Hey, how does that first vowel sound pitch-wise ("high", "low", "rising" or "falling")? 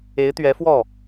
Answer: rising